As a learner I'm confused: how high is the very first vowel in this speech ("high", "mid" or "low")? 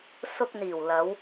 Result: high